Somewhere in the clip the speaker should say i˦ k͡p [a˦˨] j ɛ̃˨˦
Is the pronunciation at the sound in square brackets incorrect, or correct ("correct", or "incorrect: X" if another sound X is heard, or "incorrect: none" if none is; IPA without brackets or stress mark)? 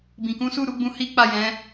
correct